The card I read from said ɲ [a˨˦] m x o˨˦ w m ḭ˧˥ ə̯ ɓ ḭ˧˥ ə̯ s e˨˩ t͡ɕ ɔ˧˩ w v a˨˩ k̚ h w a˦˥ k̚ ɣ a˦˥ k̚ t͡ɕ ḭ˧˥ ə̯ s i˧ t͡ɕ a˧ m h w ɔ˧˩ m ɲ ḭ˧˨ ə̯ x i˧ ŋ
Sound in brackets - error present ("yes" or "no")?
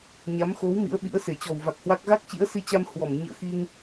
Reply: no